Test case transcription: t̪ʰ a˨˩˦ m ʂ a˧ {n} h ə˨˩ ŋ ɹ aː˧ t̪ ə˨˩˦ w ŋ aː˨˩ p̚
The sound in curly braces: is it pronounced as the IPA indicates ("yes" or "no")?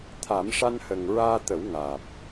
yes